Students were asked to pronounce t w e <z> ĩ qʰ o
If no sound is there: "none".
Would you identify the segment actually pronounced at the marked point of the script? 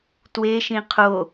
ʃ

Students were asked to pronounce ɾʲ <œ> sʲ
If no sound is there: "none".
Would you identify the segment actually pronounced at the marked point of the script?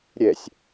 ɛ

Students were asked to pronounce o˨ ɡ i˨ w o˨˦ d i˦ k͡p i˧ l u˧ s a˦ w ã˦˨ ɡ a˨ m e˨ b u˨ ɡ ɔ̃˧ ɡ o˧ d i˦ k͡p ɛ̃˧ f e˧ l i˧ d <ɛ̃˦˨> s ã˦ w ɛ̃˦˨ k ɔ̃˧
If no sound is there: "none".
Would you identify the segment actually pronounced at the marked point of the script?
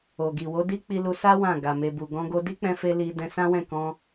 ɛ̃˧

